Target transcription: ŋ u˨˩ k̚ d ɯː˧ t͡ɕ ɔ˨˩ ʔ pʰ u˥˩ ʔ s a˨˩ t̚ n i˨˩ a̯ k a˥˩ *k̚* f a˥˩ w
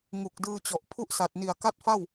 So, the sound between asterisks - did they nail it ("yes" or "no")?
no